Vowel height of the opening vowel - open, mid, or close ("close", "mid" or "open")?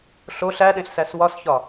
mid